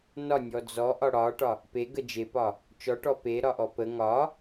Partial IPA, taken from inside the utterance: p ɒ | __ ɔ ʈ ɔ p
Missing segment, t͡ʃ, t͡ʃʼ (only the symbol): t͡ʃ